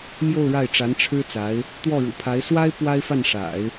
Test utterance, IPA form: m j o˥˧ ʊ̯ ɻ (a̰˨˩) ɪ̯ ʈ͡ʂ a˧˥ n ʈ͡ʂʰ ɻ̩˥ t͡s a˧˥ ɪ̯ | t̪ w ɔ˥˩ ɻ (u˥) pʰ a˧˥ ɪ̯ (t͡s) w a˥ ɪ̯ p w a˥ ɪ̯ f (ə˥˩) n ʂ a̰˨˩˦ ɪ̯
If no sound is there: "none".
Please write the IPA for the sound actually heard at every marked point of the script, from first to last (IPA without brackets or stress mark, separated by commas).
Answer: a˥˩, ṵ˨˩, s, a˥˩